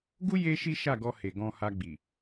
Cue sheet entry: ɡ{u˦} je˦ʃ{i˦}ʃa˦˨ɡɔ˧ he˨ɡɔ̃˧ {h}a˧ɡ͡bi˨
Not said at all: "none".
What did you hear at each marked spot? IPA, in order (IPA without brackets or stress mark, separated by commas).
u˦, i˦, h